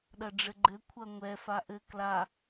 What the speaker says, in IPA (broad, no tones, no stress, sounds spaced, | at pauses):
ɗ ɐ ɖ͡ʐ ɘ ɡ͡ǃ ɘ kʷʰ ɐ ŋʷ ɛ f a ʔ ɘ k l a